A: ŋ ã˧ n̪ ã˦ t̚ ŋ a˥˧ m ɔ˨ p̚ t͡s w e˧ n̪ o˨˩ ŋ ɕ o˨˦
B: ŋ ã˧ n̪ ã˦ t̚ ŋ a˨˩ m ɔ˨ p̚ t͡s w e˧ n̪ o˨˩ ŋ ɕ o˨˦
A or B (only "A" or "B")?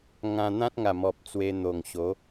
B